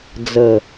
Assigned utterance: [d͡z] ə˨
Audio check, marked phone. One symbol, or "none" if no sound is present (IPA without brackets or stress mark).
d͡z